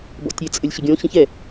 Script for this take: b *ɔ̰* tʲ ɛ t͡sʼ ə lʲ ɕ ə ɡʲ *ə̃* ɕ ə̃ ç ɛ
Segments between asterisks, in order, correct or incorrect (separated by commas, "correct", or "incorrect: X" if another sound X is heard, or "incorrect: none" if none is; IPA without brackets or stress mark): correct, incorrect: ɔ̃